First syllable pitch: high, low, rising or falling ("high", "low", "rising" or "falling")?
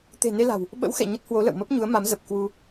low